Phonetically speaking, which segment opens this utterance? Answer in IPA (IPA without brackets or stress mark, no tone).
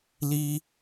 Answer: l